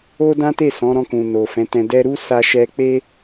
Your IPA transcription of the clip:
o˦ d ã˦ t e˦˨ s ɔ̃˨˦ ɾ ɔ̃˧ k ũ˨ n o˨ f ɛ̃˨˦ t ɛ̃˧ d ɛ˦ ɾ u˦ s a˧ ʃ ɛ˧ k͡p e˦

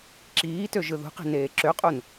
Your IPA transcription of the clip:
ǁ iː t ø ʒ ɯ ð ṳ q i̤ n eː ǁ ø qʼ u n

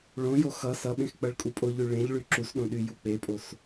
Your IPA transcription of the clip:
ɭ õ j o x ʌ s ʌ ɓ ẽ x k͡p ʌ ɭ kʼ u pʼ o ʎ y ɭ ẽ ʎ ɭ y ǁ u s ɗ õ ɗ y j u k͡p e pʼ o s

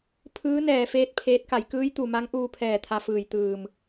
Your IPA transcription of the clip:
pʰ ɯː˧˥ n ɛː˧˩ f eː˥˨ t̚ pʰ eː˧˥ t̚ k a˩˧ j k ɯː˧˥ j t̪ u˩ m a˧˥ ŋ ʔ uː˧ pʰ ɛː˧˩ t̪ʰ a˧ f ɯː˧˩ j t̪ ɯː˧˩ m

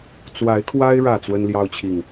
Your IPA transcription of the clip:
t͡s w a˨˦ ɪ̯ kʰ w a˦ ɪ̯ ɻ ä˥˨ t͡s w ə˦ n l j ɑ˦ ʊ̯ t͡ɕʰ i˨ ŋ

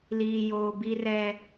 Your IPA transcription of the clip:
l iː˨ j oː˨ b i˦ r ɛ˦

